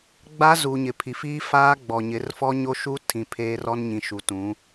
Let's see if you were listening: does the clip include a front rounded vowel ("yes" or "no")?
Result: no